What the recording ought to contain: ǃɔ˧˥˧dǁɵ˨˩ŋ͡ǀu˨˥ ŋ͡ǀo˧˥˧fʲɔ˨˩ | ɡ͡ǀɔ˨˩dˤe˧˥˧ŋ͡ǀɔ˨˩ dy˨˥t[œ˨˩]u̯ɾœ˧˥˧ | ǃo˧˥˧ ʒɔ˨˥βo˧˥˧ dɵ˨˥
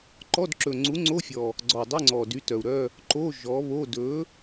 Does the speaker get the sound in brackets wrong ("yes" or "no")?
no